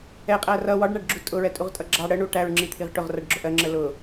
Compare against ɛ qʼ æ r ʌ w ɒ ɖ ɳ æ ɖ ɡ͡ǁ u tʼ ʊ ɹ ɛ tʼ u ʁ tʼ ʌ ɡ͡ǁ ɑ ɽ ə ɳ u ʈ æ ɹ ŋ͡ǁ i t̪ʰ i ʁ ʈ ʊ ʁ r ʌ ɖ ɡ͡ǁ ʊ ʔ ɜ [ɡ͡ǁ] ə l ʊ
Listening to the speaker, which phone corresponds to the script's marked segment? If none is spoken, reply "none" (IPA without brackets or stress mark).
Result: ŋ͡ǁ